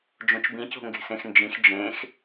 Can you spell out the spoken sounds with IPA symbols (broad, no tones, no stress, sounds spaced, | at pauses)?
d͡ʒ õ t͡ʃ b ĩ c o̤ ŋ ɡ e̤ s ẽ x n d͡ʒ ĩ x d͡ʒ ẽ x